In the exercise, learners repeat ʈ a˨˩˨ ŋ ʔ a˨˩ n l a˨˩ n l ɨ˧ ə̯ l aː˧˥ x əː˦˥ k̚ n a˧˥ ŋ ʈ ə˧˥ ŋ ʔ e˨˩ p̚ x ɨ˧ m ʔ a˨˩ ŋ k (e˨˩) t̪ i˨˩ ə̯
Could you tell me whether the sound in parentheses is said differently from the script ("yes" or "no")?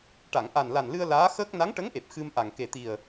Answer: no